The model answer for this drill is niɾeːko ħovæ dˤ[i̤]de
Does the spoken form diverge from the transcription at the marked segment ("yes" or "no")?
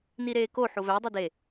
yes